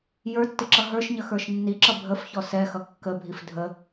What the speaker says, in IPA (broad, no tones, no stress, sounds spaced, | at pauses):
j ə˞ tː ɪ ǁ ʌ ɦ ə˞ ʃ ɲ ə x ə˞ ʃ nː i ǁ ʌ bʱ ə f ç ɔ s ɛ x ʌ kː ə bʱ i f dʱ ə